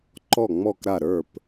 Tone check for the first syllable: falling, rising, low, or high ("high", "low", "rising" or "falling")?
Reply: falling